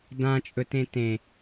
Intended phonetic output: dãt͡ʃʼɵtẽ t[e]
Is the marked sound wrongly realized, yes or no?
yes